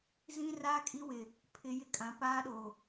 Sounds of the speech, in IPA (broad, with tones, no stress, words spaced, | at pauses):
zĩ˦raː˦kʼi˦wɪ˨ | pʰɪ˨ jɪ˦kʼã˨˦paː˦ɗo˨